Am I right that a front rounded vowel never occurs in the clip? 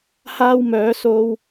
no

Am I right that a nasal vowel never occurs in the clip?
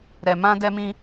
no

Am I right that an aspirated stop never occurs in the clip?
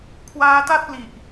no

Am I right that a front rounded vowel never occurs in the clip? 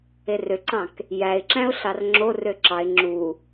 no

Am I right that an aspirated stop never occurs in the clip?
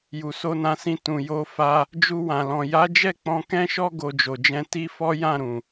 yes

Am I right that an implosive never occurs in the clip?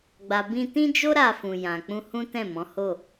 yes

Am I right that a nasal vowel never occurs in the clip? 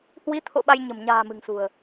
yes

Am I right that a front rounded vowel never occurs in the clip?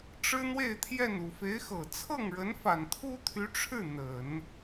no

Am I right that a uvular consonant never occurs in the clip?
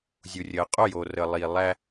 no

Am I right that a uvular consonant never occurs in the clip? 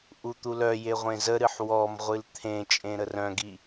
no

